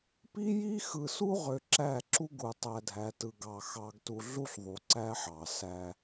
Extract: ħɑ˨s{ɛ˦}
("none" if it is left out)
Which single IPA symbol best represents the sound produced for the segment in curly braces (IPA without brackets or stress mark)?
æ˦